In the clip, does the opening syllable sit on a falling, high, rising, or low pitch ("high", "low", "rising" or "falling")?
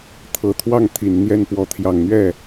low